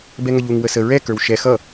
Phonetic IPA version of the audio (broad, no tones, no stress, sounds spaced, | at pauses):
b ɛ ŋ ə ʎ u ŋ w ə s ə ɹ ɛ k ə˞ w ʃ ɛ x ʌ